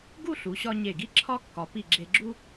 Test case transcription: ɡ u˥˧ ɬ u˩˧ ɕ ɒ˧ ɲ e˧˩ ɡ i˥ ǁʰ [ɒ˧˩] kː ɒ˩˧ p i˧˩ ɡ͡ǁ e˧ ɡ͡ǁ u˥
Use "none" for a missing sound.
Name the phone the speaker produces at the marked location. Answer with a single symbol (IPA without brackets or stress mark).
ɒ˥